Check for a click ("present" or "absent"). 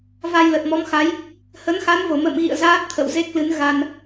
absent